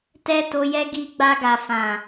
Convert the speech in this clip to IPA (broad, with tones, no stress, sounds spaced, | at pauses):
t ɛ˦ t o˧ j ɛ˦ ɡ i˧ ɡ͡b a˧ ɡ a˨ f ã˨